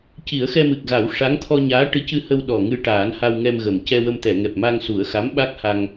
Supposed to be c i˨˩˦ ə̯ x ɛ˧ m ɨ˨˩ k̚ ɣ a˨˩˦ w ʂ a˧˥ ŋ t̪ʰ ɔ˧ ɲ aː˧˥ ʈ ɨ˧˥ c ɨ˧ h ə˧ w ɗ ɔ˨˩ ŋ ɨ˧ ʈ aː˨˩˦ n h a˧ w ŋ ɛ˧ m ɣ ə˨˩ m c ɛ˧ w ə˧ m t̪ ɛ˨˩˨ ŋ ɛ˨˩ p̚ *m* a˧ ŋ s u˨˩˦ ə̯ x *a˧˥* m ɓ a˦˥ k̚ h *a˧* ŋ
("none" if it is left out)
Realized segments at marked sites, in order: m, a˧˥, a˧

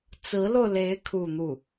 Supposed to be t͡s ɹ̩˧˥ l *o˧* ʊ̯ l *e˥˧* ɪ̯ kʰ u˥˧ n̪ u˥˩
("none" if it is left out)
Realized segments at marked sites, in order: o˧, e˧˥

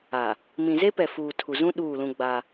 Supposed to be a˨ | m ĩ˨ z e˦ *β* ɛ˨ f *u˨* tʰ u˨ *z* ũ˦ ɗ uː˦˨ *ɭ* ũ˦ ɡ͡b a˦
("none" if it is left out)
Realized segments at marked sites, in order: p, uː˨, z, l

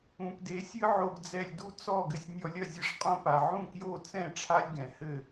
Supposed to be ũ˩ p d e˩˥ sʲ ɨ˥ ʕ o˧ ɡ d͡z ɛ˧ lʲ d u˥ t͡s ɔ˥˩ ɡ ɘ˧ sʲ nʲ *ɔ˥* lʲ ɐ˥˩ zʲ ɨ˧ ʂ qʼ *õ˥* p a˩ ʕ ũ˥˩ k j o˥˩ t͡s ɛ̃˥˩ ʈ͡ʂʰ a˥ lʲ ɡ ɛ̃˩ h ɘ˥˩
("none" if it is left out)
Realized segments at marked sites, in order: ɔ˧, õ˥

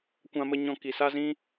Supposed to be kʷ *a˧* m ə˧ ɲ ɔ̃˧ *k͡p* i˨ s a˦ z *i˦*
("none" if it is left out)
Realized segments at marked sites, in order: ã˧, k, ĩ˦

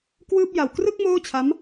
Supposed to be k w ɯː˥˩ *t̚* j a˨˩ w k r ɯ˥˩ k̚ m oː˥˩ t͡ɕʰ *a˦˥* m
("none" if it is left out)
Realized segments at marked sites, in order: p̚, a˦˥

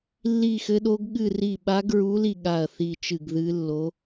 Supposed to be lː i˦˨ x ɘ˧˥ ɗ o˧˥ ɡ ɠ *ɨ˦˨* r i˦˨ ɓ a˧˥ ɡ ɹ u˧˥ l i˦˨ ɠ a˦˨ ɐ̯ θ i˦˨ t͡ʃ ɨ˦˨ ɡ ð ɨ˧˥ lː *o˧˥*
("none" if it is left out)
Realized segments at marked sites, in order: ɨ˦˨, o˧˥

